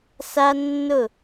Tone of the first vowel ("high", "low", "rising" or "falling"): high